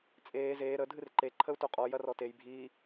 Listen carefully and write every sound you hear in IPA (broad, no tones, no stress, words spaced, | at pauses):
t͡sʼeː zeː ɾə dʱɨrǃe ǃʰəu̯toqʼɔ jɐrɔtej bʱiː